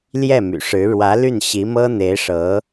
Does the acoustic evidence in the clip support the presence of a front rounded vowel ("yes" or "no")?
yes